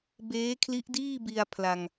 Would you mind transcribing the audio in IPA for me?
b eː˦˥ kʰ l i˦˥ ʔ d iː˥˩ b i˧ a̯ pʰ l a˧ ŋ

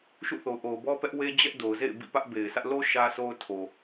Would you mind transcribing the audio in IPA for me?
ʃ ṵ˦˨ θ o˨ ʊ̯ ʔ o˨ ʊ̯ b ɔ˦ p ɛ˦ ʔ w e˦ d͡ʑ ɛ˦ ʔ d o˨ ʊ̯ z ḛ˦˨ ɪ̯ b ḭ˦˨ p ä˦ ʔ b e˨ ɪ̯ sʰ ä˦ ʔ l o˦ ʃ ä˦ sʰ o˦ ʊ̯ tʰ o˨

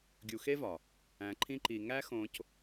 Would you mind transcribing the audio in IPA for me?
ɡʲ u˧ x e˥ v ɒ˩ | æ̃˧ ǃʰ ĩ˥ ǃ i˧ ŋ æ˥ x õ˧ c

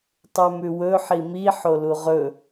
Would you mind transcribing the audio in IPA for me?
tˤ ʉ m ʉ w ɵ ħ i m i ħ o l u ʁ ɵ

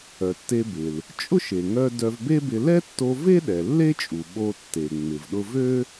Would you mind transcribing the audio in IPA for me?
œ˩ tː e˧ b ɪ˩ l | t͡ʃʼ ʊ˥ ʃ e˩ ŋ œ˧ d œ˧ v b e˥ b ɪ˧ l ɛ˥ tː o˧ v e˥ ɗ ɛ˩ lː e˥ t͡ʃʼ u˩ ɓ o˧ tː e˩ ŋ͡m ɪ˩ v ɗ ʊ˧ v ø˥

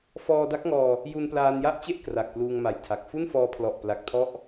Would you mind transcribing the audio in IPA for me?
f ɔː˧ d a˦˥ k̚ ŋ ɔː˧ | j u˧ n p l aː˧ n j a˥˩ ʔ t͡ɕ e˥˩ ʔ k r a˨˩ k̚ p l uː˧ ŋ m a˨˩ j tʰ a˨˩ k̚ f u˥˩ n f ɔː˧ pʰ l ɔ˨˩ ʔ p l a˨˩ k̚ tʰ ɔ˥˩ ʔ

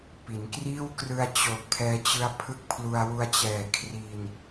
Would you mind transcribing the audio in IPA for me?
p i˩˦ n k r iː˥˩ w k r ɯ˧ a̯ t͡ɕ o˨˩ k̚ pʰ ɛː˧ t͡ɕ ɯ˦˥ a̯ pʰ ɯ˦˥ k̚ pʰ l u˧ a̯ w u˧ a̯ t͡ɕ ɛː˨˩ kʰ r i˧ n

